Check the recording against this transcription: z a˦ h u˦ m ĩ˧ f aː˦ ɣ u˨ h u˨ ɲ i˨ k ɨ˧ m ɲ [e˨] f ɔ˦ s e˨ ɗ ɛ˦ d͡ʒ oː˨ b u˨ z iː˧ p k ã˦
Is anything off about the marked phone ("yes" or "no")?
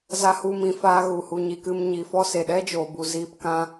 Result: yes